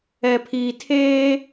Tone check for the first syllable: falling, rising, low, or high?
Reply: low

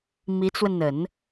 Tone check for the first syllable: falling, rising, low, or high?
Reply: rising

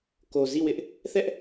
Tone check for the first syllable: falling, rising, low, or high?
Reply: low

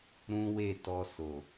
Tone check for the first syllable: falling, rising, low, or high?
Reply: high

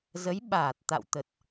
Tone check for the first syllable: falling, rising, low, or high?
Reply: rising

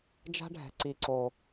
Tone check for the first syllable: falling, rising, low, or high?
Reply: high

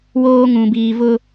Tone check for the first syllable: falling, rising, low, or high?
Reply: high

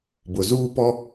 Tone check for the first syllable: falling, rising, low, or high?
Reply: low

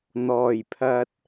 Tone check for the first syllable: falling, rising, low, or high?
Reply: low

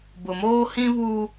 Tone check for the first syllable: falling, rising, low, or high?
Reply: low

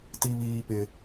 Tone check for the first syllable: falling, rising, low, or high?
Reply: high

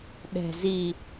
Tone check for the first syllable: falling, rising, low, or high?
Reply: low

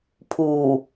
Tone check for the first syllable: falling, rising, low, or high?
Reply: low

